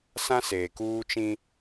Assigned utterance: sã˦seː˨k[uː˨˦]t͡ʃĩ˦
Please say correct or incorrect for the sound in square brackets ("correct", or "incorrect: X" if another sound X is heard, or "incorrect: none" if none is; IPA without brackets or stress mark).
incorrect: uː˦